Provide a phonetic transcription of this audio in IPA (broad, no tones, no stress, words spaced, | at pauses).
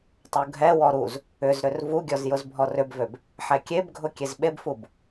tˤuɡʱɛwɔ ɾuz | ʏzɾʏr vuɡʲɔz jʊzbʱɔrʏbvøb | ħɛkʲebɡʱʊ kʲezɓebfub